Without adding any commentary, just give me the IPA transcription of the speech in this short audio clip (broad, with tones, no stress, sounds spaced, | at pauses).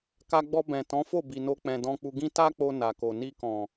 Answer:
k a˧ ɡ͡b ɔ˧ b ɛ̃˨ t ɔ̃˨˦ f o˦˨ b i˨ n o˧ k͡p ɛ̃˨ d ɔ̃˧ k͡p u˧ ɡ ĩ˦ t a˦ k͡p o˧ n a˨ k o˨ n i˧ k ɔ̃˨